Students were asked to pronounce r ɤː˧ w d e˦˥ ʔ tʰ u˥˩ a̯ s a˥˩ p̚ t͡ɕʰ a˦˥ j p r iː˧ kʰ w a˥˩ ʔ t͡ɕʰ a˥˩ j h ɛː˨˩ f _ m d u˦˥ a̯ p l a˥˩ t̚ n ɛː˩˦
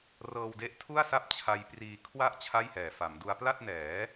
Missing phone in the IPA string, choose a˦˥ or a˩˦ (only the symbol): a˩˦